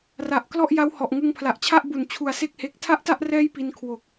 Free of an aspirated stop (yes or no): no